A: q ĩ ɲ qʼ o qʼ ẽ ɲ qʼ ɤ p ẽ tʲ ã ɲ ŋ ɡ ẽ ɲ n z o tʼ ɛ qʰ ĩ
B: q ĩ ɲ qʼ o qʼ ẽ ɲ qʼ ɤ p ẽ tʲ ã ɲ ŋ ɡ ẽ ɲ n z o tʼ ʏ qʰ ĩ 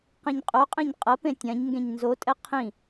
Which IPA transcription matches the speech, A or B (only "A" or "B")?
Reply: A